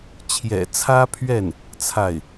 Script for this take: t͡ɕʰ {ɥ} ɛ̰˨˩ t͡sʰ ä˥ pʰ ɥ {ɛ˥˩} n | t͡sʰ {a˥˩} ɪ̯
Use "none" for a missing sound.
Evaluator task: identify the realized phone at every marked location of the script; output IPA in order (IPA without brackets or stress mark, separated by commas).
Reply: j, ɛ˥˩, a˥˩